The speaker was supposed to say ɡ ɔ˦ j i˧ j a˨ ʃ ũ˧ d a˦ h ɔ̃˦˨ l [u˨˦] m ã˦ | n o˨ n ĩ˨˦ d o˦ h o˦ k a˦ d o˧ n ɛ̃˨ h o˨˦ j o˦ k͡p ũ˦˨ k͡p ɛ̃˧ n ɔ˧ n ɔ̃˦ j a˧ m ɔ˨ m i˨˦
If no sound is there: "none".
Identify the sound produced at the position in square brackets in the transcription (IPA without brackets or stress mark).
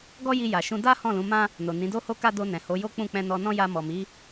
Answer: ũ˨˦